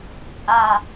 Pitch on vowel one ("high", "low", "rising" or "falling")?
falling